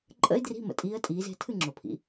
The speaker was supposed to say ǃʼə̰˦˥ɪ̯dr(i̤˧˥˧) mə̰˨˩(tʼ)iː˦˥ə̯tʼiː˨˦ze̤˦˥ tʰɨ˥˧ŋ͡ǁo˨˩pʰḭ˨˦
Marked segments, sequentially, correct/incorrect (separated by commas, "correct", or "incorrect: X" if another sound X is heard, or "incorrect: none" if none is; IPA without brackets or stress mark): correct, correct